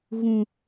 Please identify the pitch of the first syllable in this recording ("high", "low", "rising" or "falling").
high